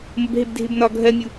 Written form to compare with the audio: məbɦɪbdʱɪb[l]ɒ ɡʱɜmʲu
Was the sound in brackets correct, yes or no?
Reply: no